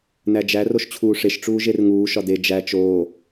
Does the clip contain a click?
no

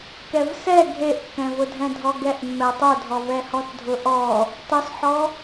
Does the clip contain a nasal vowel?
yes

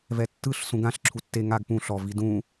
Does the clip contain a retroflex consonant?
no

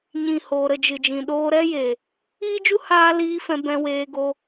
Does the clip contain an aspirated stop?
no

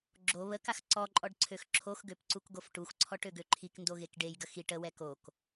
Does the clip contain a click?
yes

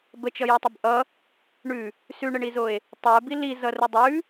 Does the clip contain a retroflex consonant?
yes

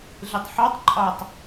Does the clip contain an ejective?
yes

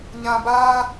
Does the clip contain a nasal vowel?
yes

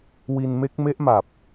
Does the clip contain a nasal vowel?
no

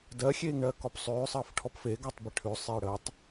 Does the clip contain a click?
no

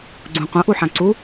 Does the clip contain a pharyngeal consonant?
yes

